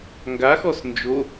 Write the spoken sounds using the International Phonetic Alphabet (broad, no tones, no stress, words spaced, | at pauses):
ŋɡaxɔs nd͡ʒo